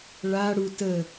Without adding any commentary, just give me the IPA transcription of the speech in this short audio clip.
ɭ a ɽ u t ə

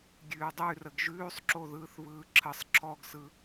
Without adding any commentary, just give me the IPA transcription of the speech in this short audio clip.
ɡʲ ʉː dˤ ʉ r ə ɡ ʒ ʉː sˤ ǁ o ð ɯː θ β ɯː ǁʰ ə sˤ ǁʰ ɔ ɡ s ɯ

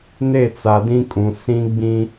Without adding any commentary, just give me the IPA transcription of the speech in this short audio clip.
n e˦˨ t͡s a˨ d ĩ˦ kʼ ũ˨ s ĩ˦ ɡ͡b ĩ˦

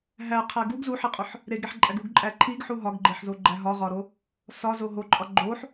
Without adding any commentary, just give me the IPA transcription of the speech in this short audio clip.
ɦ æ qʰ æ ɡ u ɡ z u ħ i qʼ o ħ | ɾ e ɡ ɾ e ħ ǃʼ æ ɡ u ɡ ǃʼ æ ǃʰ i ɡ ħ u ɦ ɒ ɡ ɡ͡ǃ e ħ z o ɡ͡ǃ æ ɦ ɒ ʁ ɒ ɾ o | s ɒ z o ɦ o ǃʼ ɒ ɡ͡ǃ o ħ

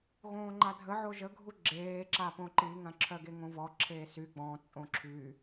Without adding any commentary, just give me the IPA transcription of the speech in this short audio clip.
ɣ õː ŋ͡ǃ a dʱ ə ʕ o ʒ ə ɡʱ u ɡ͡ǁ eː ǁ a p õ ǃ i ŋ ã ǁʰ œ ɡ e ŋ õ v ɔ ǁʰ eː s y ɡ͡b ɔ̃ t͡sʼ õ ǁʰ y

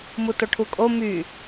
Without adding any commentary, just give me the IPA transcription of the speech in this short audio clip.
m u t o ʈʰ u kʼ o m y

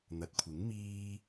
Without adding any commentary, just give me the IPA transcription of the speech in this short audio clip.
n̪ ɐ˨˥ t̚ kʷʰ ɪ˨˥ ŋ m iː˥

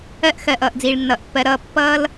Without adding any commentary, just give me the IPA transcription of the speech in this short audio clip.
ɜ˦ ʔ x ɜ˨ ʔ ʌː˨ ʔ d͡z iː˨ ɭ nː ʌː˨ ʔ pː ɜ˧ ɾ ʌː˧ pː ʌː˦ l

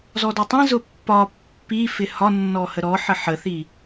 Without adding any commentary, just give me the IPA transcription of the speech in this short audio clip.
z ɔ d ə tˤ ĩ z ʊ pː ɒ pː i f ɪ h ɒ nː ɔ h ə ɾ ɔ ħ ə ħ ə θ i

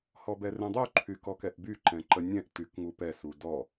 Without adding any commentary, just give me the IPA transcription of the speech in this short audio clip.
h ɔ b ɛ r ɛ̃ dˤ u ǃʰ y k ɔ k ɛ ʔ b y ǃ ɛ̃ ǃ ə nʲ ɛ̃ ʔ t y k ŋ u p ɛ s u d ɔ

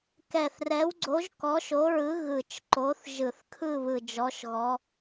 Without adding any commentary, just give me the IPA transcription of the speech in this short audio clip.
k ɛ˨˩ θ r ɛ˨˦ w ɡ͡ǀ o˨˦ ʒ k ɔ˨˦ ʃ o˨˦ ɹ ɯ˨˦ ɣ ɯ˨˩ t͡ʃ ǃ o˨˦ θ ʒ ɯ˧˩˧ θ kʰ ɯ˦˨ β ɯ˨˩ d͡ʒ ɔ˨˦ ʃ ɣ ɔ˨˦

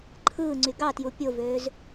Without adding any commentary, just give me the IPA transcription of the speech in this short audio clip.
ǃʰ ɯː ŋ͡ǀ y ɡ ɑ t j u pʲ o v øː z

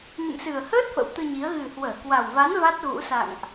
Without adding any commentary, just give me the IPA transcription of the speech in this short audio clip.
ŋ ɨ̰˧˨ m s ɨ˨˩ ə̯ h əː˦˥ t̚ f ə̰˧˥ w t̪ ɨ˧ ɲ i˨˦ ə̯ ɣ ɨ˨˩ h w əː˧˩ k w a˨˩ w v a˨˦ n v a˦˥ t̚ ɣ ṵ˧˥ s a̰˧˨ ŋ ʔ

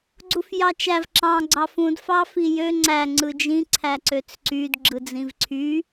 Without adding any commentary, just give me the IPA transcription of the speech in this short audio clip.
ɡ͡ǀ u f j ɑ t͡ʃ æ v ǁ ɑ̃ ɡ͡ǀ ɑ f ũ d f ɑ f i j ø ŋ͡ǀ æ ŋ͡ǀ ɯ d͡ʒ ĩ ǀʰ æ ǀ ø t͡s ǀ y d ɡ͡ǁ ɯ d͡z ĩ v ǀʰ y

